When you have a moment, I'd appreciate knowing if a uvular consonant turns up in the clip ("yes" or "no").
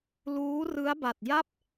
no